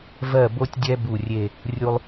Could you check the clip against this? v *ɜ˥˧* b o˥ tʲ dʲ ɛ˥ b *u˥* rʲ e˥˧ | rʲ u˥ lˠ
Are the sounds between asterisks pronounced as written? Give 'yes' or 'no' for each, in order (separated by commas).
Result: yes, no